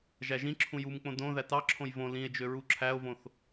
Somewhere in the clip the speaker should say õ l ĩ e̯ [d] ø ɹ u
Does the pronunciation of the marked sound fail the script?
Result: yes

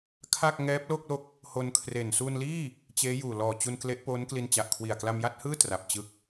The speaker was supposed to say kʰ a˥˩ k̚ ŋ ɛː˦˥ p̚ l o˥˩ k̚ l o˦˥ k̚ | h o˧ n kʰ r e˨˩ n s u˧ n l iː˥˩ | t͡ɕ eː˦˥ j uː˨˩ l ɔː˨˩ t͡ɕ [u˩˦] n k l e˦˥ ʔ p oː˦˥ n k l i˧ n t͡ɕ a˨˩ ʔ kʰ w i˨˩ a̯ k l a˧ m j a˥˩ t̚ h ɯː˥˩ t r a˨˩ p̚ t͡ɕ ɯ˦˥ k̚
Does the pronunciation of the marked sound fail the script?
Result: yes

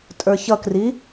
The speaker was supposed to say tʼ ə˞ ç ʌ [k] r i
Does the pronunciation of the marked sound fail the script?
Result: no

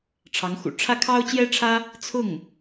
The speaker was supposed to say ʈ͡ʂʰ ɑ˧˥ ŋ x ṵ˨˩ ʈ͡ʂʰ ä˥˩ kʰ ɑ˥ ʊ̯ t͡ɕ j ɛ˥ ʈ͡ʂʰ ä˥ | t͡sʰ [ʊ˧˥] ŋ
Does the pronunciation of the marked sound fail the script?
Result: yes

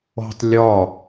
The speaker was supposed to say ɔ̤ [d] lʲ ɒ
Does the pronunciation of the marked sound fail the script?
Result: yes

